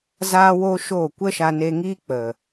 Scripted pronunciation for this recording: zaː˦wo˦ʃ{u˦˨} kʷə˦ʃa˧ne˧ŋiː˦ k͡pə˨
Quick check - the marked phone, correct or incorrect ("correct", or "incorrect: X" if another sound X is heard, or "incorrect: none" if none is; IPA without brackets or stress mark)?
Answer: incorrect: o˦˨